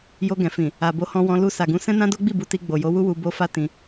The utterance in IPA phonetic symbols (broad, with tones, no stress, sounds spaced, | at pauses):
j o˧ ɡ ɛ̃˨ f ĩ˨ | a˨ b o˨˦ h ɔ̃˧ w ɔ̃˧ l u˧ s a˨ ɡ ũ˨˦ s ɛ̃˦ n ã˦ d o˦ ɡ͡b i˦˨ b u˧ t i˧ ɡ͡b o˨ j o˨˦ w u˦ w u˧ b o˦ f a˦ t ĩ˧